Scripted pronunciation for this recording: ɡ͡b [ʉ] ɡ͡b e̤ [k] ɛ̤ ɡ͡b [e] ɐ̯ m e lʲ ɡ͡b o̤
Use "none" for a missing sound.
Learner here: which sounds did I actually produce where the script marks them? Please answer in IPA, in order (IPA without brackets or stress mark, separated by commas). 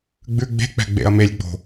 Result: ʉ, k͡p, ḛ